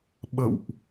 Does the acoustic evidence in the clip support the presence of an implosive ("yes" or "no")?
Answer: yes